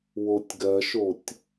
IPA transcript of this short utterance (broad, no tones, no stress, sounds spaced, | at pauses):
w o tʲ ɡ ɜ ʃ o tʲ